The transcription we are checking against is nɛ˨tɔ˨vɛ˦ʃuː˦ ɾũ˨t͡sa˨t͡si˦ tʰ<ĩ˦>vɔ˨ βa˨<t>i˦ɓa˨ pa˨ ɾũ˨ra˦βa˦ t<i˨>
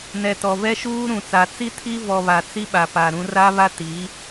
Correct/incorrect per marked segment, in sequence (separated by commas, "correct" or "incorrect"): incorrect, incorrect, incorrect